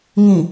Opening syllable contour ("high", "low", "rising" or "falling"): low